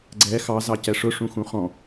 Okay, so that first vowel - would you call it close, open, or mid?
mid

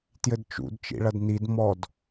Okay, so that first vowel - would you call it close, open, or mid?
mid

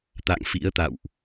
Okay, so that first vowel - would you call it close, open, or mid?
open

